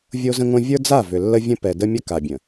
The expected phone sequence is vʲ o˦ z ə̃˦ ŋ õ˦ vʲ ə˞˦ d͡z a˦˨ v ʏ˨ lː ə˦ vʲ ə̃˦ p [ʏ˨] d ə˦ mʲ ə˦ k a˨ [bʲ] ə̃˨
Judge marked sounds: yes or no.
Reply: no, yes

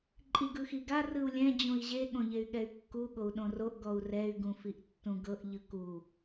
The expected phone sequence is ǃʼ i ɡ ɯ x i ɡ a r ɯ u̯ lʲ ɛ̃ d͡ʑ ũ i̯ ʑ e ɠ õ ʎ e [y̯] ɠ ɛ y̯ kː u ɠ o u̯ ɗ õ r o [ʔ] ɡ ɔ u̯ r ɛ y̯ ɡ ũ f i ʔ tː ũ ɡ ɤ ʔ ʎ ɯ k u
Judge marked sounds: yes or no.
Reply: yes, yes

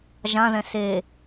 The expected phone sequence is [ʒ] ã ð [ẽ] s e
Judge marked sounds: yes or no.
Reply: yes, no

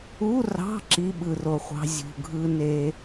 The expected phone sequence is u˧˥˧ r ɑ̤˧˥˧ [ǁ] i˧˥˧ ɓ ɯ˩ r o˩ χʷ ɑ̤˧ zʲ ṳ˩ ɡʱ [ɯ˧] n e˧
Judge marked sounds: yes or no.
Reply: yes, yes

